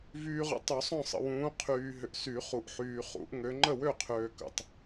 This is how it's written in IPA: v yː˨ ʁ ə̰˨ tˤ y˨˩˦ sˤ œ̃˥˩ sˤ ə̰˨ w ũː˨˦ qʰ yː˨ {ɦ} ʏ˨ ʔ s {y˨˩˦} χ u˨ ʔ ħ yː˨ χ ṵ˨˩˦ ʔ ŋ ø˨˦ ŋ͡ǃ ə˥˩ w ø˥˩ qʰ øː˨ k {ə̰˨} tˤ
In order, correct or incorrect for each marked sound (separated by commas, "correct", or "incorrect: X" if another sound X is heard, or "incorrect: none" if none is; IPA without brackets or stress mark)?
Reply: correct, correct, correct